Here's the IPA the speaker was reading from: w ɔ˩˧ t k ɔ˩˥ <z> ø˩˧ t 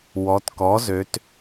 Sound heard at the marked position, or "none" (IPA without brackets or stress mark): z